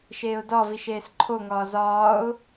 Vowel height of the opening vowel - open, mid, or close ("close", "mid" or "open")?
mid